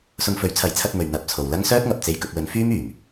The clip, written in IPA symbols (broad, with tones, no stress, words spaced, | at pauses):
sʊ˧ŋfɵ˨˥ɥt͡sʰɐ˨˥jt͡sʰɐ˧t̚ mɵ˨ɥ n̪ɐ˨˥p̚t͡sʰo˨wlɐ˥ŋ sœː˥t̚ŋɐ˨p̚ t͡se˧jkɵ˧t̚wɵ˨˥nfyː˥m yː˨˩m